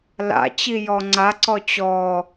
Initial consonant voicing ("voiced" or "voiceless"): voiced